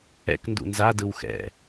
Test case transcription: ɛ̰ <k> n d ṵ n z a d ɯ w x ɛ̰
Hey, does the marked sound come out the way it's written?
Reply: yes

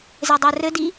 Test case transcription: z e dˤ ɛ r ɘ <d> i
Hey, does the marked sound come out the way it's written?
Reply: yes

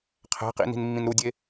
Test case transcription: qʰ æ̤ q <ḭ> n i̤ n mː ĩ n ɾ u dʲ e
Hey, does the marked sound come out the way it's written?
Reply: yes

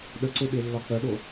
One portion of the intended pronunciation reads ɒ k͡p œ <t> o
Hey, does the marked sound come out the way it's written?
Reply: no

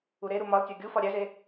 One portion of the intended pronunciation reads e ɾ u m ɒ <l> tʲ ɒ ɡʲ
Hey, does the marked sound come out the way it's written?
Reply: yes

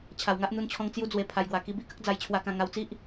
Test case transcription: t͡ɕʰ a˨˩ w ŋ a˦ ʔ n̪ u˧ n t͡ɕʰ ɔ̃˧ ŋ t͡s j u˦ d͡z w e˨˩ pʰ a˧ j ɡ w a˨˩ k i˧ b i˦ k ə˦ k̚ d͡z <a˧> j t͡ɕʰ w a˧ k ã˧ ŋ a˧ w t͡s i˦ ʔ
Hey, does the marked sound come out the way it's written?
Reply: yes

